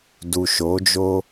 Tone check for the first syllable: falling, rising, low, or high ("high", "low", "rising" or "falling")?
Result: low